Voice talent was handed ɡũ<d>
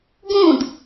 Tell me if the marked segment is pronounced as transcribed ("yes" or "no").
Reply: yes